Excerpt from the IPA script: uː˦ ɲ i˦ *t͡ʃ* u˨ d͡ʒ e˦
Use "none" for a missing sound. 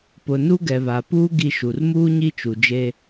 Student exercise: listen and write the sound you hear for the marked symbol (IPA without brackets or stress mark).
t͡ʃ